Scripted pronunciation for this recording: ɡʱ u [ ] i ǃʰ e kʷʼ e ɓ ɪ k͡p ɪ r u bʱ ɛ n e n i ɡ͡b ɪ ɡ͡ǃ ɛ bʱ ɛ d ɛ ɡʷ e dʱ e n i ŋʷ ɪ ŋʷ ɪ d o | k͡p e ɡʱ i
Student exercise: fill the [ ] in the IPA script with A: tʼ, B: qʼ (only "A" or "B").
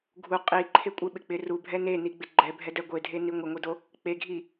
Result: B